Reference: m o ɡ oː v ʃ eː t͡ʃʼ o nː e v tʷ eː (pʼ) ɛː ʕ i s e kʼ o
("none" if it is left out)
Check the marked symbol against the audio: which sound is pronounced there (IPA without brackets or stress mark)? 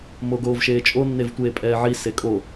pʼ